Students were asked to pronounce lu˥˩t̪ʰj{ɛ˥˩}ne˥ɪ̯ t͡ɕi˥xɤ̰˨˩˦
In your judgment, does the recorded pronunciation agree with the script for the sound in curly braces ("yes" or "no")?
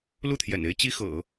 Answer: no